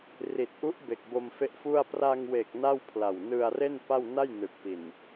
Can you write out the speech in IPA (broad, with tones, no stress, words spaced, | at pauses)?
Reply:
ri˨˩t̚ʔu˦˥ʔ be˨˩k̚bo˧mfe˦˥ʔfu˥˩a̯ pra˧ŋwe˨˩k̚ na˥˩wpʰla˨˩w nɯ˧a̯re˥˩n pa˥˩w na˥˩jnɯ˨˩k̚ pi˨˩n